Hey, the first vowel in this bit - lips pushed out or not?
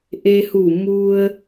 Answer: no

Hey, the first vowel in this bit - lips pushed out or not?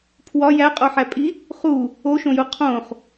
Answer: yes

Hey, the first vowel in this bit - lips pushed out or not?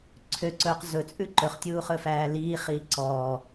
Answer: yes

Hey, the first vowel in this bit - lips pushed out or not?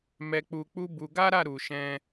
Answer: no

